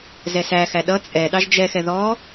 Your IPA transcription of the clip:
z ɛ s æ x æ ɗ ʌ t͡sʼ ɛ ɗ ɑ ʒ d͡ʒ ɛ x ɛ ð ɔ

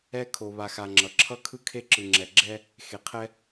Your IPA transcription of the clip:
ɛ˦ kʰ o˨ β a˨ x a˨ ŋ͡ǁ ʌ˨ ǁʰ ʌ˦ kʰ ɯ˦ kʰ e˦ ǁ ɯ˨ ŋ͡ǁ ɛ˨ ɡ͡ǁ ɛ˦ | x e˨ qʰ ɛ˦

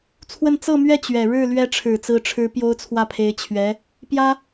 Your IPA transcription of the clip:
t͡sʰ w ə˥˧ n t͡s ɤ˥˧ m ɥ ɛ˥˩ t͡ɕ ɥ ɛ˨˩ ɻ ɻ̩˥˩ l ɥ ɛ˧˥ ʈ͡ʂʰ ɻ̩˨˩ t͡s ɹ̩˧˥ ʈ͡ʂʰ ɻ̩˧˥ p j o˥ ʊ̯ t͡sʰ w ä˥˩ pʰ e˧˥ ɪ̯ t͡ɕʰ ɥ ɛ˧˥ | p j ä˥

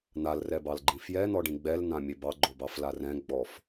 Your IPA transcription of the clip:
n̪ a l r ɛ b ɑ l ɡ͡ǃ ĩ f j ɛ n̪ ɔ ɖ ĩ ɡ͡b ɛ l n̪ ã mʲ e b ɑ ɡ͡ǃ o b ɑ f l a r ɛ̃ ɡ͡b ɔ f

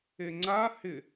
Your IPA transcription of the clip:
e ŋ͡ǀ a h ɪ

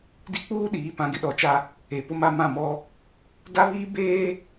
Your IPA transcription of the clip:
d i˦ k͡p uː˦ ɗ iː˨˦ p ã˨ ɡ ɪ˦ ɗ ɔ˨ t͡ʃ a˦ | e˨ p ʊ˦ m a˦ m ã˦˨ m ɔ˦ | d a˦ β iː˦ b eː˦

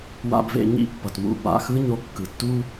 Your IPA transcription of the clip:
w a̰˧ b v ḛ˧ ɲ ḭ˦ pː ʌ˨ t m ṵ˦˨ b a̰˧ x ɯ˦ ɲ o˦ kː ɯ˧ tː u˦

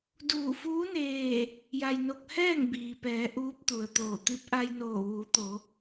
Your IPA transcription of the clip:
d uː˧˩ f uː˧˥ n eː˧˩ | j a˧ j n o˧ k̚ h ɛː˥˨ ŋ b iː˩ p ɛː˩˧ ʔ uː˧˥ p̚ t̪ u˩ ə̯ t̪ oː˧˩ t̪ i˧˥ p̚ ʔ a˧ j n oː˧˩ ʋ uː˩˧ t̪ o˩˧

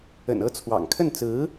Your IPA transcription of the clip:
ə̰˨˩ n ɤ˥˩ t͡sʰ w ɑ̰˨˩ ŋ kʰ ə˥˩ n t͡s ɹ̩˧˥

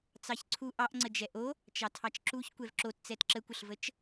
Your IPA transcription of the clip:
t͡s ɑ ç ǀʰ u ʔ ɑ ʔ ŋ͡ǀ ə d͡ʒ ɛ ʔ o | t͡ʃ ɑ tʰ ɑ t͡ʃ ǁ u ç kʷ ɛ v ǁ o t t͡s ɛ t ǁ ə kʷ ə ɬ v ə t͡ʃ

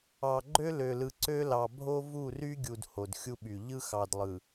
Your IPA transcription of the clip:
ɑ˨ ɡ͡ǃ ø˦ l ø˨ l ɯ˨ ǀ ø˦ l ɑ˨ bʱ o˦ v u˦˨ r y˦ ɡʲ u˨ d h o˨ d xʲ u˦ ɓ y˨ ʎ ɯ˦ x ɑ˨ d lˠ ɯ˨

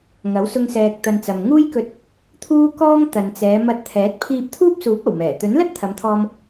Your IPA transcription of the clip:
ŋ ɐ˨˥ w s ʊ˧ ŋ s ɛː˨ k̚ t̪ ɐ˨ n t͡s ɐ˨ m ŋ uː˥ j k ɵ˧ t̚ | t̪ʰ uː˥ k ɔː˥ ŋ t̪ ɐ˨ n t͡s ɛː˨˧ m ɐ˧ t̚ t̪ʰ ɛː˨˥ t̚ pʰ iː˧ p̚ t̪ʰ uː˥ p̚ s uː˨˥ p̚ ɐ˨˩ w m ɛː˨˩ t̪ ɵ˨˥ n l ɐ˥ t̚ t̪ʰ ɐ˨˧ m t̪ʰ ɔː˧ m

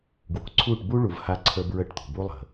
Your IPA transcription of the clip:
ɡ w o̤˨ ǀʰ u˦˨ ʈ b u˦ ɭ u˨ v h a˦ ǀʰ ə˦ b ɹ ə˦ ʈ t̪ o̤˨ b u˦ lˠ ə̤˨

